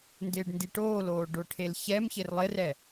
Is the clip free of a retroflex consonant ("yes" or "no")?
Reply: no